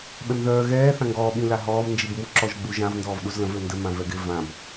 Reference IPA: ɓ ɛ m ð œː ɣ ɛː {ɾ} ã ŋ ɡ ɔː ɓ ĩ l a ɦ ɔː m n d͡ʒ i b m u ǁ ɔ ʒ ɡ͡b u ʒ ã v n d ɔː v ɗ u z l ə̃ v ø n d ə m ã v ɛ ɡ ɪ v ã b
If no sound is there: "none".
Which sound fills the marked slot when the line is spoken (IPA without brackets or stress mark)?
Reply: θ